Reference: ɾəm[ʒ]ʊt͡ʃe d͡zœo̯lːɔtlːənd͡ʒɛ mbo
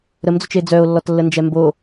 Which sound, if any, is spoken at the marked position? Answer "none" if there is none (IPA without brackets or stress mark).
d͡z